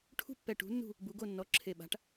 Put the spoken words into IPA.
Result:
ʈʰ ṳ˦ pː ɛ˨˩ ʈ ṳ˩˧ nː ṳ˦˨ | b u˩˧ ɡ o˦˨ nː ɔ˩˥ ǁʰ e˨˩ ɓ a̤˩˥ ʈ

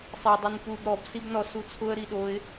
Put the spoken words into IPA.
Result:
sˤ ɛ dˤ u n p u b ɾ ɔ b s i b n ɔ s u t͡sʰ ʊ ə̯ ɾ i ɗ o ɪ̯

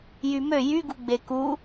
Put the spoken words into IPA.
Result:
j y m ø j y ɡ u ɡ͡b e k u

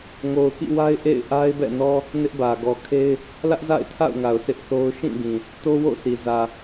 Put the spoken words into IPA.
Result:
ŋ o˨ ʊ̯ k ḭ˦˨ w a˦ ɪ̯ ʔ ḛ˦˨ ɪ̯ ʔ a˦ ɪ̯ b ɛ̰˦˨ n ɔ˦ | n ɪ˦ ʔ b ä˨ ɡ ɔ˨ kʰ e˦ ɪ̯ | l ä˦ ʔ z a̰˦˨ ɪ̯ tʰ a̰˦˨ ʊ̯ ŋ a˨ ʊ̯ s ɪ˦ ʔ θ o˦ ʊ̯ ʃ ĩ˦˨ ɡ ĩ˨ | t o˦ w o̰˦˨ sʰ i˨ z ä˨

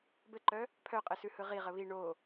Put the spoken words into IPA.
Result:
b ɘ ǃ œ | pʰ œ qʼ ɘ s ʉ h ɯ ʁ i ʁ ə β i ɳ o

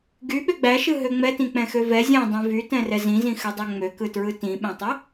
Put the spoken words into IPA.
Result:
ɡ y ɓ ø ɡ͡b æ ʃ ɯ ɦ ø ŋ͡m ɛ t ĩ k͡p ɛ̃ x ø v ɛ zʲ ɛ̃ dˤ ĩ v y t ɛ̃ r ɛ z ĩ z ĩ x ø dˤ æ ŋ͡m ø k ɯ t ɹ ɯ t ĩ ɓ ɛ̃ tˤ ɛ

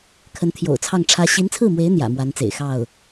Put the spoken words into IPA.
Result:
kʰ ə˧˥ n t̪ʰ j o̰˨˩ ʊ̯ t͡sʰ ɑ˥˩ ŋ ʈ͡ʂʰ ä˥ ɕ i˧˥ n t͡sʰ ɹ̩˥˩ m w e˧˥ ɪ̯ n̪ j ä̰˨˩ m w a˧˥ n t͡s ḛ˨˩ ɪ̯ x ɑ˥˩ ʊ̯

